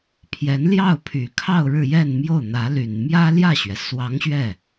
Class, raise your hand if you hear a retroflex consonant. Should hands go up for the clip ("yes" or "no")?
yes